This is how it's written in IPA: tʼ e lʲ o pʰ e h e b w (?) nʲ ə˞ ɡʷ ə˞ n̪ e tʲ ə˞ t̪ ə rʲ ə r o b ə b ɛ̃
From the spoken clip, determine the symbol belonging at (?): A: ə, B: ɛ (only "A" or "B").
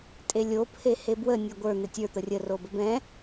A